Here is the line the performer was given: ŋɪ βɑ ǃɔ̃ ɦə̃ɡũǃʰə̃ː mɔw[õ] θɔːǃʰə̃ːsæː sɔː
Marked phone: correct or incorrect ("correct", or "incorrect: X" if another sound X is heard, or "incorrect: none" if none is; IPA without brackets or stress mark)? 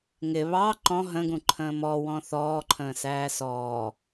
incorrect: ɔ̃